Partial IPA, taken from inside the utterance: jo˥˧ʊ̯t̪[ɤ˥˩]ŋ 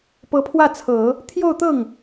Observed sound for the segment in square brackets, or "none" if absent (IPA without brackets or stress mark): ɤ˥˩